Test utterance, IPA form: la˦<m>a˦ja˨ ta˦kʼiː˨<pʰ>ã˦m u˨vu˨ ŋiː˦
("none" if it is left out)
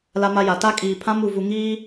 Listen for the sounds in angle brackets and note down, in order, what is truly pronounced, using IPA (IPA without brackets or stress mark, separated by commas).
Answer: m, pʰ